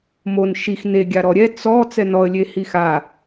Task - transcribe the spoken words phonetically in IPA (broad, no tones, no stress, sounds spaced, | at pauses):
m o n ʃ i x n e ɡʲ a ɾ ɔ ɾʲ ɛ t͡s ɔ t͡s ɛ n ɔ ə̯ lʲ e h i x a